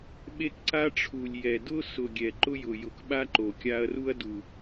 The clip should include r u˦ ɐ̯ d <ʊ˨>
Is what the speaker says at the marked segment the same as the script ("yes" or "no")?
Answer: no